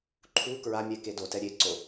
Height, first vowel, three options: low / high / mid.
high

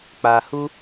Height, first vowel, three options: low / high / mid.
low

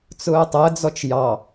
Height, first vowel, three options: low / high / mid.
high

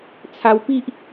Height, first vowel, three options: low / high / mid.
low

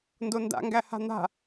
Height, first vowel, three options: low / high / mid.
mid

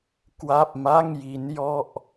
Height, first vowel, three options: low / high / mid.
low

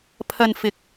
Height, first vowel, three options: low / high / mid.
low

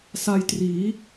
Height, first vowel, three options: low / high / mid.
low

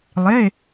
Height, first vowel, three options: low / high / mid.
mid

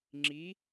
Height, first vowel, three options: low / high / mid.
high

